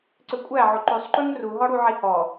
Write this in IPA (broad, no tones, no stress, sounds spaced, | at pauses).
ǀ ø kʷʼ æ ʕ o ǃ ʉ sˤ ǃ ʉ ŋ r u ɦ ɔ ɽ u ʕ i h ɔ